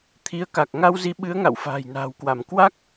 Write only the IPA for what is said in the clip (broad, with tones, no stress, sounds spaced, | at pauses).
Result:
t̪ʰ i˨˦ ə̯ k a˨˩ k̚ ŋ a˧ w z i˨˦ ɓ ɨ˨˦ ə̯ ŋ a̰˧˨ w f a̤ː˨˩ j n a̤ː˨˩ w k w a˧˩ m k w a˦˥ k̚